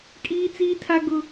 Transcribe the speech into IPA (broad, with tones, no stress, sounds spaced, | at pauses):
kʼ iː˦ t͡s iː˦ tʰ a˦ ɡ ʊ˦